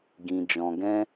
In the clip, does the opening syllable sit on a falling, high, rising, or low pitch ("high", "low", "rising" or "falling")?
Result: low